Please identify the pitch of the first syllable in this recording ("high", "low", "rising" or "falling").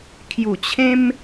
falling